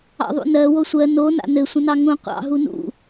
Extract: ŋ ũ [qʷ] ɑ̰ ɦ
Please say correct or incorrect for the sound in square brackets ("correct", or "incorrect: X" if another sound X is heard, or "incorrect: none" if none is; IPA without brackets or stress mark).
correct